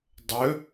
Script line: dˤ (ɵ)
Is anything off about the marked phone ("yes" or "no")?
no